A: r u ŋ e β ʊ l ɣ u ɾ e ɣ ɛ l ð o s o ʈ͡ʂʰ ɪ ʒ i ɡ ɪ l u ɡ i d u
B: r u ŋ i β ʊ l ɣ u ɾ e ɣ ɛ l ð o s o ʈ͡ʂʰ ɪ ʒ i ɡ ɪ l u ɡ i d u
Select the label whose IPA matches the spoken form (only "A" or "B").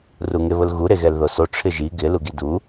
A